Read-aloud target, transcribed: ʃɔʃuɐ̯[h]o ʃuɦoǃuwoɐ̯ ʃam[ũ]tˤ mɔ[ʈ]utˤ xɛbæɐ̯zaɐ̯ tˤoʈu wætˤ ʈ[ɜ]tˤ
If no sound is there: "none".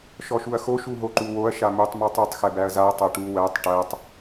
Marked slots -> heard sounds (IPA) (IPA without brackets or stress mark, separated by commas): x, u, tˤ, æ